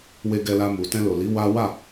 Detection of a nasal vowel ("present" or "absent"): present